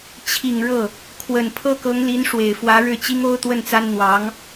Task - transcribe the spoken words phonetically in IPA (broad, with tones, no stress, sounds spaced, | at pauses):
t͡ɕʰ i˨˩ ŋ ɻ ɤ˥˩ | kʰ w ə˨˩ n pʰ ɤ˥˩ k ɤ˧˥ ŋ l i˧˥ n ʂ w e˨˩ ɪ̯ f w ä˧˥ ɻ ɻ̩˥˩ t͡ɕ i˥ ŋ o˥ ʊ̯ t̪ w ə˥˩ n t͡s a˥ n n̪ w ɑ˧˥ ŋ